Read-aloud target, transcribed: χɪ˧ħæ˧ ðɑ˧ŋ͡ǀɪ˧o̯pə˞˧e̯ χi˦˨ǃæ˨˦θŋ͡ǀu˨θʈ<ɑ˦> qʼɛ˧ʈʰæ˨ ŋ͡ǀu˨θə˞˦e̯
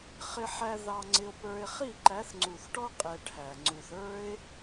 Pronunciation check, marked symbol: incorrect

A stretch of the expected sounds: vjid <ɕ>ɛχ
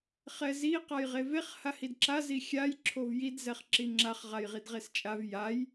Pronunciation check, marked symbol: incorrect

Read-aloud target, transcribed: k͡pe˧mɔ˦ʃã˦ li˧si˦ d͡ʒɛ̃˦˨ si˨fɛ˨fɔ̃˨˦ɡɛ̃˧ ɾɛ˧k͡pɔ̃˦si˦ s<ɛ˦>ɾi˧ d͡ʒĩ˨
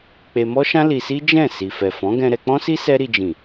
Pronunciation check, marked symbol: correct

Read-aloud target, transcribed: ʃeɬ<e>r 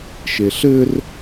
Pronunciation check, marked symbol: incorrect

